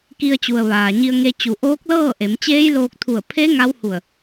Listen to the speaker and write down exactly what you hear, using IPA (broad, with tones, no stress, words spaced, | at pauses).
ki˧ə̯t͡ɕu˩ə̯ ʋaː˩ɲi˧ə̯ŋe˧ t͡ɕu˩˧ʔoː˧˥k̚lɤː˥˨ʔe˩˧m t͡ɕeː˧˥jloː˧k̚t̪ʰu˧˩ə̯ pʰe˧˥ ŋa˧˥whu˧˩ə̯